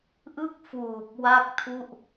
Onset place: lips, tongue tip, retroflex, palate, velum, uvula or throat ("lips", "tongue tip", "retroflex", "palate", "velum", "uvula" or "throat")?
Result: throat